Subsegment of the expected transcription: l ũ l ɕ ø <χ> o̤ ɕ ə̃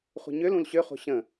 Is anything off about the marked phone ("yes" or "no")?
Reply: no